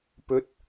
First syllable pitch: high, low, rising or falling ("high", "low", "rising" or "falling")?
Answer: rising